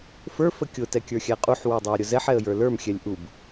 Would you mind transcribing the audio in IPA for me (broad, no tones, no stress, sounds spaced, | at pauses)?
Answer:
f ə˞ f ə kʲ ʊ t ɛ kʲ ə˞ xʲ æ qʼ u ħ w ə˞ dˤ ɑ ə̯ ɾʲ ʊ z ɛ ħ ɛ ə̯ j ə˞ l ə˞ m xʲ ɛ lʲ ʔ u b